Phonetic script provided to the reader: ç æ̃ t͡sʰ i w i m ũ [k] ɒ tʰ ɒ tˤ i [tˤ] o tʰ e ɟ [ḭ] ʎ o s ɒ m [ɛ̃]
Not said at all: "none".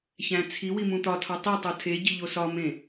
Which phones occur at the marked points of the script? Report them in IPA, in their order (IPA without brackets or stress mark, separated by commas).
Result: t̪, tˤ, i, ẽ